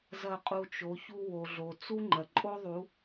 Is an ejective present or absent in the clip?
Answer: present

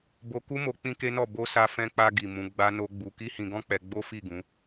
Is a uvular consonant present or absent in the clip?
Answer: absent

